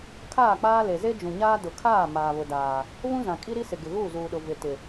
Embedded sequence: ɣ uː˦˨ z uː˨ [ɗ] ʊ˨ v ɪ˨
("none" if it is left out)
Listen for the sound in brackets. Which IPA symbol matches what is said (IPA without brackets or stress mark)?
ɗ